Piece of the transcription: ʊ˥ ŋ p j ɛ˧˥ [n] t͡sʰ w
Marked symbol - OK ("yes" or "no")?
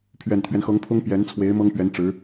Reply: yes